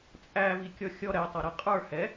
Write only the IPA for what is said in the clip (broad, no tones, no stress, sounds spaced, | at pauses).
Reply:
t͡sʼ æ v i kʲ ɔ xʲ ɔ ɾ ɛ tˤ ʌ ɾ ɛ qʼ ə˞ h ɛ